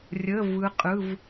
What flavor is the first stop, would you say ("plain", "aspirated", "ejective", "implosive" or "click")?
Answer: ejective